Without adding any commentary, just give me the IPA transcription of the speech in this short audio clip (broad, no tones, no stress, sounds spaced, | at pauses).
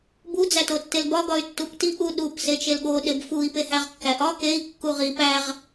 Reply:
b u d͡z æ t o tː e l b ɒ ɡ ɒ y̯ tː u p t i ʔ u ɗ u p s e t͡ʃ e l ɠ o ɗ e b f u i̯ p e h æ ʁ kː æ ʔ ɒ k e i̯ kː u ʁ i p æ ʁ